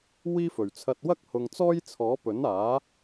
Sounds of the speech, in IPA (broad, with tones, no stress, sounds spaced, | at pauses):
w iː˥ f ɵ˨˩ ɥ t͡sʰ ɐ˧ t̚ w ɐ˥ k̚ h ʊ˨ ŋ t͡s ɔː˥ j t͡sʰ ɔː˨˥ p ɵ˨˥ n aː˨˥